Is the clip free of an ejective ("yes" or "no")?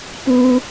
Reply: yes